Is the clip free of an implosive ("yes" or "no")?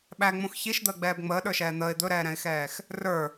no